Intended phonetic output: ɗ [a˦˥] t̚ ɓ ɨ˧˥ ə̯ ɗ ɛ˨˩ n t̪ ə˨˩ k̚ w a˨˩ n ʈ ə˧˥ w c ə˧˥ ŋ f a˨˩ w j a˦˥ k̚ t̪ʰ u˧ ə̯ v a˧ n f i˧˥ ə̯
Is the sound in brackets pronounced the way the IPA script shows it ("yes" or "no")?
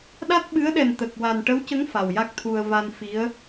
yes